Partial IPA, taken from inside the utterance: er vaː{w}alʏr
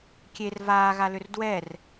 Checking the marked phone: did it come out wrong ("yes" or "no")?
yes